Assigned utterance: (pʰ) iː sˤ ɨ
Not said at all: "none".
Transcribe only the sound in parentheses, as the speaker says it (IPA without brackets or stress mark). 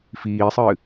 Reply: f